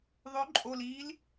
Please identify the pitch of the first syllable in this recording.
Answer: rising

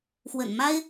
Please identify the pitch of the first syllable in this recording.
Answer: low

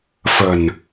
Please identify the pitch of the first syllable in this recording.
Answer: low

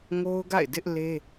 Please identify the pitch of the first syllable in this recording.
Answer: high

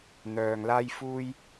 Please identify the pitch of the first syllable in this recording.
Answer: low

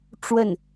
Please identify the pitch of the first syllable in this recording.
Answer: falling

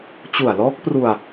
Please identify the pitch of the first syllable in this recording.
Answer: low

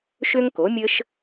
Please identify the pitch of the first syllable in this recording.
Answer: high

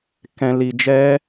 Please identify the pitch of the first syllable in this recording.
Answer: low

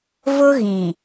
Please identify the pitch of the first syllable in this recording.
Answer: high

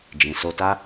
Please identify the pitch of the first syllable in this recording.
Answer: low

